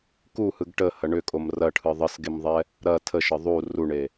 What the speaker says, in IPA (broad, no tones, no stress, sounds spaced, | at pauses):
k u h ɯ ɡ ʈ ə h ɐ ɳ ʏ kʼ o m r ɐ ʈʰ ɯ ðˤ ə s ɡ e m ðˤ ɛ | ɾ ɐ tʰ ə ʃ ə ðˤ u r u ɳ e